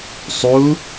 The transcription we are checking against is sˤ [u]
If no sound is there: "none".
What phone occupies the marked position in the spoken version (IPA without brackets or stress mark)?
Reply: u